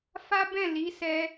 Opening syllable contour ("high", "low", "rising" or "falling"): high